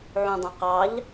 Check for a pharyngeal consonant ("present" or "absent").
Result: present